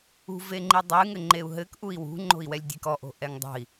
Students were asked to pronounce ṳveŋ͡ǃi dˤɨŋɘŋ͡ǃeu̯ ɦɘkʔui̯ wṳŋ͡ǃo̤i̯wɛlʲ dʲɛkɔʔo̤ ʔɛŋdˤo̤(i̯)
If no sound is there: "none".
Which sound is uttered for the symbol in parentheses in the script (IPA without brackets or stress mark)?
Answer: i̯